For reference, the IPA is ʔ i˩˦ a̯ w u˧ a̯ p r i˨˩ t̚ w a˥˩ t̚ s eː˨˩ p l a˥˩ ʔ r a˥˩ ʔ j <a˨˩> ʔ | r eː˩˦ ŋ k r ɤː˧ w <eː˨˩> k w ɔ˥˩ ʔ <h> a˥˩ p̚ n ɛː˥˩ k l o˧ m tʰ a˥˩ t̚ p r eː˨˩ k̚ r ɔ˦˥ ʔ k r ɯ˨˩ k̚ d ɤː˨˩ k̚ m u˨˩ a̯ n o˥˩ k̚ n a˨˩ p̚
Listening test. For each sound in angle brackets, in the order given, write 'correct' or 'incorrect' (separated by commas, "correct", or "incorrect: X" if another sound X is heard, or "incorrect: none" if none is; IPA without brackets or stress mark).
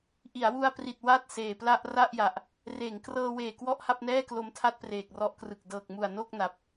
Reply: correct, correct, correct